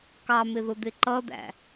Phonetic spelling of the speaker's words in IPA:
kɑmɪðʊ d̪ɪǃʌd̪æ̰

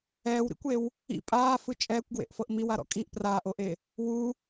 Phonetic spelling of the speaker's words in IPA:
ɛːwɾḭkʷew | ḭ pʼaːfɯ t͡ʃʼɛːkʷɡwḛʔfɤʔ miwaɾɔ̰ kʼiʔ praːʔoʔe | wu

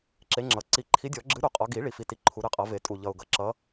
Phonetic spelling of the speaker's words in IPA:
ǁe˨˥ŋ͡ǁʌ˨˩ ǀi˨˩˦ǃʰi˨˥dʲɔ˨˩˦ɡ͡ǁɨ˨˥ ɾu˨˥qʼɔ˨˥ ɡi˨˩˦ ɭi˨˥fi˨˥ti˨˥ ǃʰu˨˩˦ɾɨ˨˥ qʼʌ˨˩˦ve˨˩˦ tʼu˨˩ʎʌ˨˩ʊ̯ɡʌ˨˩˦ ǁʌ˨˥

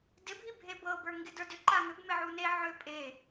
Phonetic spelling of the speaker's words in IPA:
dɪbʱi bʱebɤbə˞ ŋɡɪdə˞dʏ ǃaŋʏb mɪʕune ʕʏ pʼe

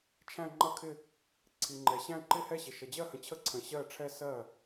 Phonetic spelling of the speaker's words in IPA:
t͡ʃʰæ̃˥˧ŋ͡ǃʌ˥˧kʰɪ˥˧ | ǀʰi˨ŋ͡ǃɛ˨ɕæ̃˥˧ǃɪ˥˧ hɛ˥˧ɕɪ˨ ʃʌ˨d͡ʑɜ˥˧hə̃˨t͡ɕʰə˥˩ ǀʰə̃˨ɕɜ˥˩ʈ͡ʂʰɛ˥˧ sɜ˥˩

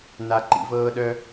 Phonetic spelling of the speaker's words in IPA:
na˥ ǃḭ˥vɤː˥ɗœ˥

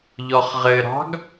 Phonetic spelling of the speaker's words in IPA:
ʎɔχʁɘɾɑ̤ɡ

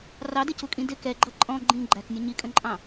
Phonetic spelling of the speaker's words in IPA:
rɑdɪcukʼĩ dɪ kɛɡ͡ǃʌ ǃʼɔ̃ ɡ͡ǃĩ ɡ͡ǃæknʲʊ ɲikʼə̃ǃʼɑ̃

